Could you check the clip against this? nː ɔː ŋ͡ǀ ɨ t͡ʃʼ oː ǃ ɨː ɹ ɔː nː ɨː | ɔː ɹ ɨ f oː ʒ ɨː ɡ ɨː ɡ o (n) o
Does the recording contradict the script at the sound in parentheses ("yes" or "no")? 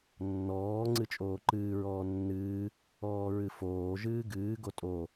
yes